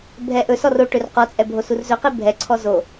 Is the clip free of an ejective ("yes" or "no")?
no